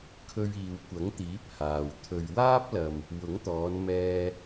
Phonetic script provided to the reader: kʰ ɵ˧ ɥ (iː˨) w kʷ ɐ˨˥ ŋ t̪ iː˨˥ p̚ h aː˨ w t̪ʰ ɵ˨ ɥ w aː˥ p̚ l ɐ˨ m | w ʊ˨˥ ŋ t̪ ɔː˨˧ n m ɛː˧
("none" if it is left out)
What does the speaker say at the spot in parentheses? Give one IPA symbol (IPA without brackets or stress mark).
iː˨